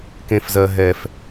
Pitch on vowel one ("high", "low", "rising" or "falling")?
low